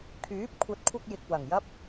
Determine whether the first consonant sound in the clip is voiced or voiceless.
voiceless